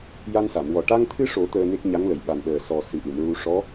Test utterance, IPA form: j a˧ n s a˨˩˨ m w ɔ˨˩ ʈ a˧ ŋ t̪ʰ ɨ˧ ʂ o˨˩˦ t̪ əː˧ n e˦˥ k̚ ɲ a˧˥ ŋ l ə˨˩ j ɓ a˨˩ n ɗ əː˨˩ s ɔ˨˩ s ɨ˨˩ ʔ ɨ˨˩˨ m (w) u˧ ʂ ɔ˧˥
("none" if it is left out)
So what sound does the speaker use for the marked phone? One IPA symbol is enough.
ɹ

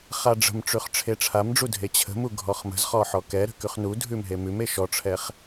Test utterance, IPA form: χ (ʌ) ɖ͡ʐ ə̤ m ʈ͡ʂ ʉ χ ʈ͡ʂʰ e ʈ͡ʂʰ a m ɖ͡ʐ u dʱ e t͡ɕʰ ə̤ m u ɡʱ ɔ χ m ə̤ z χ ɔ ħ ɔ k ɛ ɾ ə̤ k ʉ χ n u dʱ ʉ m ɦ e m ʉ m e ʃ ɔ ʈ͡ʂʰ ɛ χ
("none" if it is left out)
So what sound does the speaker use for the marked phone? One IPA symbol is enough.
a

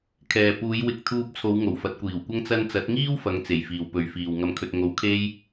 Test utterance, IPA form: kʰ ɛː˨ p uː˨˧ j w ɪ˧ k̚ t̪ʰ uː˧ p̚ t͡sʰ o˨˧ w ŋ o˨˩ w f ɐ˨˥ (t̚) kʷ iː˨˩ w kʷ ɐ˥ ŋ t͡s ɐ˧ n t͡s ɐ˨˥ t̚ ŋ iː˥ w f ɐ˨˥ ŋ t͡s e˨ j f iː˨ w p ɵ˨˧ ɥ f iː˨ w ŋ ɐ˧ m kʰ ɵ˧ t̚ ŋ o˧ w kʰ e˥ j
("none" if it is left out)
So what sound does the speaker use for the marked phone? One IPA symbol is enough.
t̚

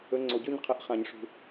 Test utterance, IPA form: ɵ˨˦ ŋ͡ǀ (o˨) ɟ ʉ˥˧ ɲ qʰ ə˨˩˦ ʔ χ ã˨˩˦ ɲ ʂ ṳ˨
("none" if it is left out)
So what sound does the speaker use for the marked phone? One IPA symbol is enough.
o˨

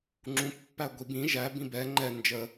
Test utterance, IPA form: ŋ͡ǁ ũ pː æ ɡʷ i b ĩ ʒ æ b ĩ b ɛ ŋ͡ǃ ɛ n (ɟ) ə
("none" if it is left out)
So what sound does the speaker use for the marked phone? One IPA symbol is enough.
d͡ʒ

